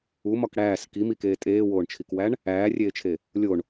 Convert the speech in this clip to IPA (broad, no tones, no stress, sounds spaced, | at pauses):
u m ɒ k ɽ æː s k i m i k eː tʼ eː w oː ɳ t͡ʃʰ i k w æ ɳ | æː rʲ eː t͡ʃʰ e | lʲ o ɳ